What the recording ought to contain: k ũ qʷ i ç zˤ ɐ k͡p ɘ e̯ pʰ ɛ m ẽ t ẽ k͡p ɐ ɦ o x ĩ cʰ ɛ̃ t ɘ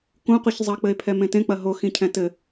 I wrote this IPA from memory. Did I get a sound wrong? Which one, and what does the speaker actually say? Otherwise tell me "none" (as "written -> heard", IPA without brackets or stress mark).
none